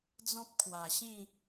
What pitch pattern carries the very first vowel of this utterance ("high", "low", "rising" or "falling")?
high